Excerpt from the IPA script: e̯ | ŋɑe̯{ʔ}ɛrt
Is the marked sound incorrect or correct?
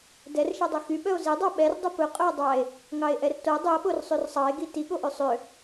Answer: correct